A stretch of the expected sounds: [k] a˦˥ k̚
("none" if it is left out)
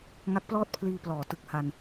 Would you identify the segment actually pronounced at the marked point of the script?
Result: ŋ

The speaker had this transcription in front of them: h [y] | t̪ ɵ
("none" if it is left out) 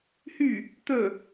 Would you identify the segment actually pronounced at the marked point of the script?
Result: y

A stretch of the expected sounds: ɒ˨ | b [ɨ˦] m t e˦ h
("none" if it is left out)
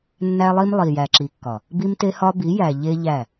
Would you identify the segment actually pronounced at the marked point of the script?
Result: i˦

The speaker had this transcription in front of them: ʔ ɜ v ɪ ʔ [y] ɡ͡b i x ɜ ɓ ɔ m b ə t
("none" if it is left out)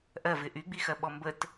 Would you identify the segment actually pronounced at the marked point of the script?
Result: y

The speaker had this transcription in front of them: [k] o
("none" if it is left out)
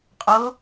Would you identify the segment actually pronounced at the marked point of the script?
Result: qʼ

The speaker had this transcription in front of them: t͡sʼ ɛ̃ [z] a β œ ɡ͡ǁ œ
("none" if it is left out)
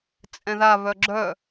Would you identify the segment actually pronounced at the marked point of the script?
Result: ð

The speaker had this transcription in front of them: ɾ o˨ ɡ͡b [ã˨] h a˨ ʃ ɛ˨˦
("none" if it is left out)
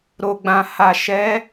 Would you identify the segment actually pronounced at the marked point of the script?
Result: ã˨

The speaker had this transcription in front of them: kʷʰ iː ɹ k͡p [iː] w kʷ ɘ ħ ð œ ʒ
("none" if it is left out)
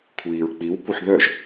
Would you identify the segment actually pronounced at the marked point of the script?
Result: i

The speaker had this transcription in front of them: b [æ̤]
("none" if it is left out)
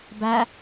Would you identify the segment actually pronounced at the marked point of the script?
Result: æ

